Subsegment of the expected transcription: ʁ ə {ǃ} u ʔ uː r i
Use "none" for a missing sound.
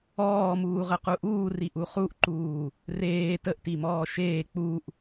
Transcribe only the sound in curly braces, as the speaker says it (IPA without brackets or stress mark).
q